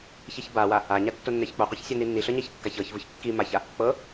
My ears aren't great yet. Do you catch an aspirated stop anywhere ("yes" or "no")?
no